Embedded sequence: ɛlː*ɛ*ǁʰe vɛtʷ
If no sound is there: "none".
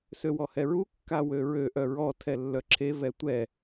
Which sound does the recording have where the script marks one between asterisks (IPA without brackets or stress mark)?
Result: œ